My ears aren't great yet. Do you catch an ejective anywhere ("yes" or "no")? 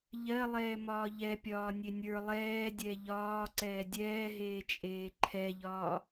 yes